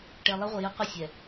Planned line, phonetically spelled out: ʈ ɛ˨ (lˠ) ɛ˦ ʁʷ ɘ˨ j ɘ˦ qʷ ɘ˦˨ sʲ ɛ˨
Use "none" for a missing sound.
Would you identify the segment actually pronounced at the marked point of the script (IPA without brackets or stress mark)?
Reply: lˠ